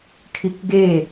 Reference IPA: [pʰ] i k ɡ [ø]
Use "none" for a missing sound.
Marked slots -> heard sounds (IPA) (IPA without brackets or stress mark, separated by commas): kʰ, e